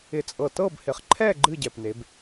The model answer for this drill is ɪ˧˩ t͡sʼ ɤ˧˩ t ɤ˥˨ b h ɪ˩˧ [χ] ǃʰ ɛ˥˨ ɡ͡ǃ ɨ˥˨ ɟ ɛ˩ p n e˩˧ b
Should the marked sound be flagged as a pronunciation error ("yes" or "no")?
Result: no